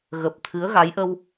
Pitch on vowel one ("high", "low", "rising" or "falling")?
low